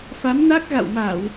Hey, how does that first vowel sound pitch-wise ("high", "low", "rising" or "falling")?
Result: rising